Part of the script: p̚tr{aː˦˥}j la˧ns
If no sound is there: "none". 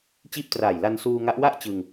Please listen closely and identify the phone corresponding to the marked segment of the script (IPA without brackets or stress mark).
aː˨˩